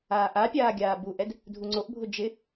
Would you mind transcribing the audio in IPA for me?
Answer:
aːʔapʲaː ɡʲaːbuʔɛd | dʱuŋ͡ǀoʔbʱʊ d͡ʒɪ

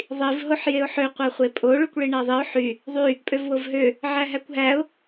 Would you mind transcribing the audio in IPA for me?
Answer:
ðˤiv ɦoħjeʊ̯ħø qʷæχʷepʼo ɭykʷɭiɳæðˤiʊ̯ ħy | ðˤy | pʼøvwovɦø | ʕæɦækʷɦæʊ̯

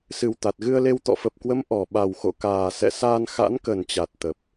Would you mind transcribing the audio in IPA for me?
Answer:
sɨ˨˩wt̪a˨˩t̚ɣɨ˧ə̯le˧w t̪ɔ̰˧˨fə˨˩p̚kwə˨˦m ʔɔ˧˩ ɓa˨˩wxo̰˧˨kaː˨˩ sɛ̰˧˨saː˧n xa̰˧˥nkə˨˩nt͡ɕa˨˩t̚ t̪ə˨˩p̚

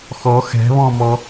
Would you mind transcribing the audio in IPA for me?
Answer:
xɔ xɛ̤βɔ̃mɔ

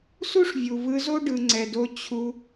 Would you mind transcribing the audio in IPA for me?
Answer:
su˦ʂvʲu˨vɯ˧ zo˦ ɖɯ˨ŋ͡ǀɛ˨do˧ t͡ɕʰu˧

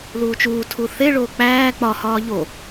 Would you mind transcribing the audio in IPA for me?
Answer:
luːt͡ʃuːtʰu θeɭoː k͡pæː k͡pɒhɒː ʎo

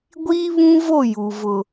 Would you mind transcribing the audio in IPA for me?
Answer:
ɡʷiː˦βũ˦vo˦˨ ju˨ vʊ˨

